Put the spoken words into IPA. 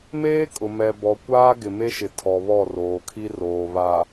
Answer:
meː˦kʼʊ˨ mɛ˨ bɔ˨kʷaː˦ ɡɪ˨me˦ʃɪ˨tʰɔ˨ βɔ˦˨roː˨kʰi˦roː˨ βa˨

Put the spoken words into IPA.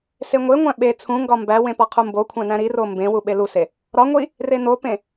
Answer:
seŋʷeŋʷæ̃ ɓe t͡sʰũŋɡɒ mbæwẽ pɒqʰumbokʷʰæ̃ næ̃ɾiro mbẽwu ɓeluse | ɾɒ ŋʷi | renopẽ

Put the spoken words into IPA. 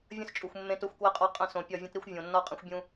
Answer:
vʲə̃˦st͡ʃʼu˨xʷ mːẽ˦t o˦xʷkwə˦qʼɒ˦ qʼə̃˦˨sõ˨ pʲɒ˦˨vʲə̃˦tɾi˦xʷ vʲõ˨nːɒ˦qʼə̃˦xʷbʲũ˦

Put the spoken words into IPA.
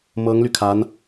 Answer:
mɤ˧˥ŋly˧kʰa˧˥n

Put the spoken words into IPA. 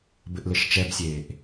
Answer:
bɘʔlɘʃt͡ʃɛbsʲeːʔ

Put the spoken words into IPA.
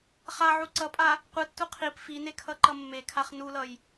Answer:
χa ʕuǀʌpʼa | qʷɯtːu qʰip fine kʰʌǃʌmːekʰaχ nulʌj

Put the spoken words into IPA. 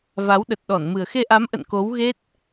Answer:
va˨˦wɗə˨˩t̚ɗɔ˧˩nmɨ˨˩ə̯ xe˧ʔa˨˦mʔə̰˧˨n ko˨˦wɣe˦˥t̚

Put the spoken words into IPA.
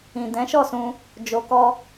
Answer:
ĩ˨dɛ̃˨˦ʃɔ˦˨sũ˧ | d͡ʒo˧kɔ˦

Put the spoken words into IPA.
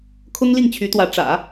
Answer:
kʰʊ˥ŋli˥˩ŋt͡ɕʰy˧˥t̪wä˧˥ ʈ͡ʂä̰˨˩˦

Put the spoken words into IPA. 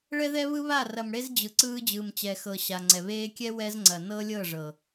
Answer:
ɭɛ˦ðɛ˦βɯ˦βa˦˨ rɐ˨mɽe˦z d͡ʑɯ˨ǀɯː˦ d͡ʑɯː˨mt͡ɕɛ˨xɤ˨ ɕa˨ŋ͡ǀɛ˨ βeː˦ kʲɛ˦ wɛ˦z ŋ͡ǀɐ˨nɤ˦lʲɤ˦˨ ʐɤ˨

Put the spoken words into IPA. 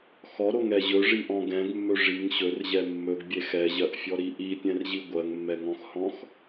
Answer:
xɔɾoŋɛ ʑɵʐiʔɔ̃ ɡɛ̃ɡmːɵ ʐiŋ ɕɵrʑɛ mːɵɡbʲe xɛʑɜʔfʲɔɾi ʔipʲɛ̃rʑi ɡʷɜŋmːɛŋɔ̃xhɔ̃x

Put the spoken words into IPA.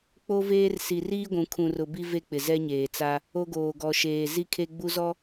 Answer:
k͡po˦veː˦r si˨riː˦ɡʷũ˨ kʰũ˨rʊ˨ bi˦ve˦k͡pɪ˨ zɛ˦ɲeː˨t͡sa˦ | o˦ɡoː˨ɡɔ˨ʃeː˨ zi˦kʰe˦ɡ͡bu˦zɔ˦

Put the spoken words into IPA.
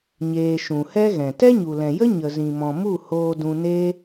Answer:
ɲeː˧ ʃũ˨hɛ˦ɣɛ̃˨ tɛ˦ɲu˨lɛ̃˨jə˦ ɲə˨zĩ˨mɔ̃˨mu˦˨ hoː˧dũ˧ne˦

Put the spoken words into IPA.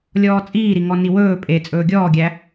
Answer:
lʲɔːt͡sʼiːɾiŋɔ niwɵː pʼe t͡sʼɵːɡʲɔːɡʲæ

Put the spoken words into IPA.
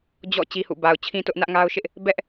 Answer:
d͡ʑɔ̰˦˨ t͡ɕi˦hṵ˦˨ ba˨ʊ̯t͡ɕʰĩ˦tʊ˦ʔ nä˦ʔŋa˦ʊ̯ʃɪ˦ʔ | bɛ˦ʔ

